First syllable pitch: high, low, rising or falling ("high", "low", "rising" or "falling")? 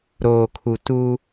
low